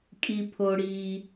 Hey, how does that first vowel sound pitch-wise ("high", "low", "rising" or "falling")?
low